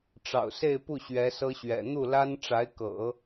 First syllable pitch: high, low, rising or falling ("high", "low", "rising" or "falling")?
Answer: low